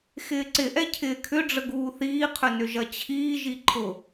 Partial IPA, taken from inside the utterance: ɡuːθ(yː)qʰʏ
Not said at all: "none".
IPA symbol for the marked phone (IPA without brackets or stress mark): iː